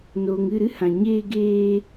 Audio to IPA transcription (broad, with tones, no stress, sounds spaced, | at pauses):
n oː˨ ŋ ɨ˦˨ ɾ ɨ˦ h ã˨ ɲ eː˧ ɡ eː˧